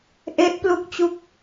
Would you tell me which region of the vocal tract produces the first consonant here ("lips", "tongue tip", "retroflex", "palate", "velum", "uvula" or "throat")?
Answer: throat